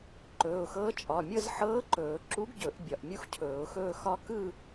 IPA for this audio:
ǃ ɵː˩˧˩ ʊ̯ x ɤː˧˥ t͡ʃʼ ɒ˩˧˩ mʲ ɤ˥˧ z ħ ɤː˧˥ ǃ ɵː˨˩˦ ǁ u˧˥ ɡ ɟ ɵ˨˩˦ ʔ bʲ ɒ˩˧˩ ʔ mʲ u˥ x cʰ ɵː˨˩˦ ʊ̯ x ɵː˥˧ x ɒ˥ k ɯ˥˧

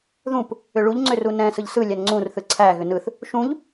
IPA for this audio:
ð ũ p | ʏ ɭ u ʎ ŋ͡ǀ ʏ r u n ɛ̃ s ɯ ʎ s ɯ lʲ æ n ŋ͡ǀ ũ r θ ɯ ǀʰ æ ɣ ʏ n ɯ θ | ʃ ũ ʎ

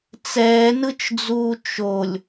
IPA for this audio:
t͡s ɛː n ɯ t͡ʃ d͡z uː t͡ʃ o lʲ

